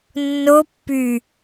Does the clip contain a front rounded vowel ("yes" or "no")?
yes